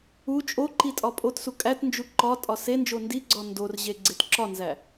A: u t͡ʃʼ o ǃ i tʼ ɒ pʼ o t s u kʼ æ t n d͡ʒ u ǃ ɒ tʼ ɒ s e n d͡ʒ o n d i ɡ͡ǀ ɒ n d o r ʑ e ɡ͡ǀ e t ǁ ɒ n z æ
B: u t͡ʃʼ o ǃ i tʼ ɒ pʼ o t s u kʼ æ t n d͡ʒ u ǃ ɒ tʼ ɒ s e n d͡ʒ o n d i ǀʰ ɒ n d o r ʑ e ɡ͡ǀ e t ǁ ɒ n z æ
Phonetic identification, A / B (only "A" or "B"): A